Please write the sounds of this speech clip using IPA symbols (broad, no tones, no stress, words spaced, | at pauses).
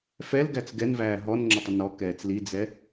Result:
fɛlɡæt͡s ɡɛnvæː ɦɔnŋ͡ǁʊtˤə nɔkɛːt͡s lid͡zɛ